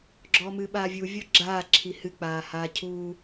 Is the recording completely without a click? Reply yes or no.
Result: no